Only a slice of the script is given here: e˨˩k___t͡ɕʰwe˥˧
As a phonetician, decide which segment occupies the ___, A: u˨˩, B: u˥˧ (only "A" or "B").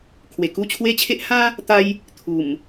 B